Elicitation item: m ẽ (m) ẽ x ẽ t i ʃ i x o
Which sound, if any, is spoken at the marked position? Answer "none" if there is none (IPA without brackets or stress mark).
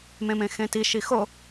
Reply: m